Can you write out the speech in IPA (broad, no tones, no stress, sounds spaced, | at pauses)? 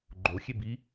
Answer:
ɡ͡ǃ o xʲ e b i